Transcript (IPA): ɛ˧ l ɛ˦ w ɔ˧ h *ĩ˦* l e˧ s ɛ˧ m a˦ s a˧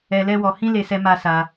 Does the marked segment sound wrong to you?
no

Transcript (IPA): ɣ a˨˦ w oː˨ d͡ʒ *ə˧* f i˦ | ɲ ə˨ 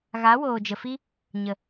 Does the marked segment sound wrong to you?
yes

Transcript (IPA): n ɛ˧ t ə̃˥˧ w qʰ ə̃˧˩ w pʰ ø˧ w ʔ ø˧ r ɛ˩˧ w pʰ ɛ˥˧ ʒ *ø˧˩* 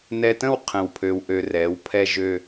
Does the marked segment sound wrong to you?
yes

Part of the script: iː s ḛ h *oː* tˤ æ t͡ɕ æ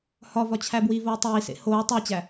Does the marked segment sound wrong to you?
no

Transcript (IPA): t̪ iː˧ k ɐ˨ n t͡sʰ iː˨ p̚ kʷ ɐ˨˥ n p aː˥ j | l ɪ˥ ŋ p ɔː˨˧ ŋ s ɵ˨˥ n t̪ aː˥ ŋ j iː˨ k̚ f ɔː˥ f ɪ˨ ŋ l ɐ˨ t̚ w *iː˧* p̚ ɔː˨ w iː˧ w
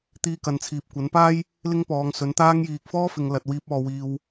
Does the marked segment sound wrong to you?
no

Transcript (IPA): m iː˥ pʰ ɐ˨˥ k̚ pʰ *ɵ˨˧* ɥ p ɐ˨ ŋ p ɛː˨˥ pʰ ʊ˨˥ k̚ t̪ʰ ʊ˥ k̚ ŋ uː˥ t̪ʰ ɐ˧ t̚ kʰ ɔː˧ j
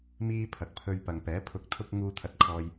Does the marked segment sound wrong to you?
yes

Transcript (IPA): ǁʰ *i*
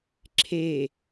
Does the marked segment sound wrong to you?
yes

